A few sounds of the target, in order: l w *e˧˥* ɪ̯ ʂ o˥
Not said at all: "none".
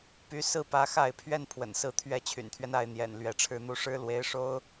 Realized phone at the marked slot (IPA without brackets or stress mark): e˧˥